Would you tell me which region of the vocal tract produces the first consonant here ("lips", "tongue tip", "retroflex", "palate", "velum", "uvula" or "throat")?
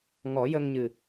velum